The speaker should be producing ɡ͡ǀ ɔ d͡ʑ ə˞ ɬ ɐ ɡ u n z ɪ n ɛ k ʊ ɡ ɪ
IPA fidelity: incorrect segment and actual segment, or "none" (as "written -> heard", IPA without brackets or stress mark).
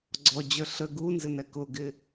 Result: ɐ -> ə